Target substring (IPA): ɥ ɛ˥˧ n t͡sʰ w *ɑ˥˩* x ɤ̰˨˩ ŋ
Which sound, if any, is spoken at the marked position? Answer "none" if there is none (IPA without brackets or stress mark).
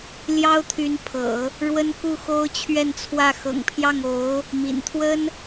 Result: ä˥˩